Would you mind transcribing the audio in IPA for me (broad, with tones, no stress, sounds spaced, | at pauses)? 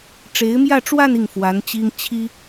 ʈ͡ʂ e˧˥ ɪ̯ m j ä˥˧ ʈ͡ʂ w a˥˧ n i˥˩ ŋ f w a˧˥ n t͡ɕ i˥ ŋ t͡ɕʰ i˥